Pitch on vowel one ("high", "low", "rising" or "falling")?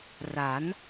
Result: rising